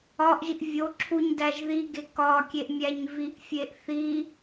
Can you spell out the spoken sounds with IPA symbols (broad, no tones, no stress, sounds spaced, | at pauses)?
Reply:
ɒ ʔ ʒ i ʔ vʲ o ǁʰ u ɲ d æ ʒ ð i ɡ e k ɒ kʲ e ʔ mʲ æ ɲ v i ʔ fʲ e ʔ θ i